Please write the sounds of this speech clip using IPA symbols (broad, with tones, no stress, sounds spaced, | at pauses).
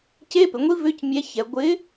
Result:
c e˧˥˧ p ɪ˩˧ ŋʷ i˦˥ v ʏ˧˥˧ c mʲ ɛ˨˥ ç ɛ˩˧ ɡʷ ɪ˨˥